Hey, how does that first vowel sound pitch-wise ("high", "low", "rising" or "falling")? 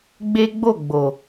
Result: high